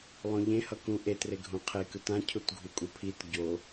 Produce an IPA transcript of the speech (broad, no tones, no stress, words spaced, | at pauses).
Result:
lˠõʎẽ hʌkũʔe treɡʱũqʰe kɯtã cʰutɡʱukʼupʰit ɟo